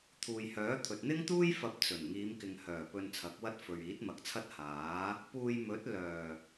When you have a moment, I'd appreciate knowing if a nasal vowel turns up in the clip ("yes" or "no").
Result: no